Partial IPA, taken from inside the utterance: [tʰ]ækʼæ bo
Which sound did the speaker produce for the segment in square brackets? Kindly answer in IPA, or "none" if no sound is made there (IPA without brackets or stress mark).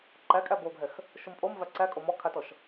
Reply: ǃ